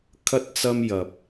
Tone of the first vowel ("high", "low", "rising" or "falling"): high